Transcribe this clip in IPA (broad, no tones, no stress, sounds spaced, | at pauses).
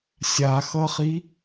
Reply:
sʲ a x ʌ χ i